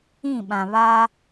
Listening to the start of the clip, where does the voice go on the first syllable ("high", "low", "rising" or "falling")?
falling